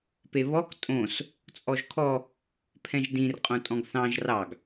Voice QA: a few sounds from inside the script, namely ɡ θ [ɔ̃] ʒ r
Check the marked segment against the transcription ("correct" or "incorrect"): incorrect